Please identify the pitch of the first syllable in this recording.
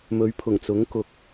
rising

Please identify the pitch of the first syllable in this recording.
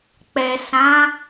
low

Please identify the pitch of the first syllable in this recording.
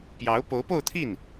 rising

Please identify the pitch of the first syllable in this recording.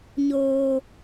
low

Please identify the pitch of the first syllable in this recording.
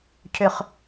high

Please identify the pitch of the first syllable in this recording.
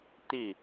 falling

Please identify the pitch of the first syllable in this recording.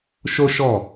high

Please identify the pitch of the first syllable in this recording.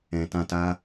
low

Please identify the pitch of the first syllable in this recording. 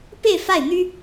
falling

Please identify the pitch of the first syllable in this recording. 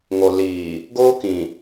low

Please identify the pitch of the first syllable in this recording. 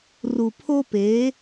low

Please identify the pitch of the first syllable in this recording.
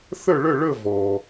falling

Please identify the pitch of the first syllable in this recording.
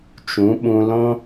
rising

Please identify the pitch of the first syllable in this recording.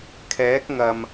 rising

